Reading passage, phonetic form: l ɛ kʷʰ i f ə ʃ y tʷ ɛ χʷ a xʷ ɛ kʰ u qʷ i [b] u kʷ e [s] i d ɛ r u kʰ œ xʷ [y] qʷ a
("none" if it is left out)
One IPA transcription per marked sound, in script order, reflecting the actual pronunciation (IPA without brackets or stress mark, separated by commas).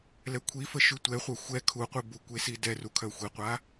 b, s, i